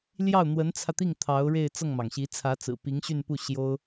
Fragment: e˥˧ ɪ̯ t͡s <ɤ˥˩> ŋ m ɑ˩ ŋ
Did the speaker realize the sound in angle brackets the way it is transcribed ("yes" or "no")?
yes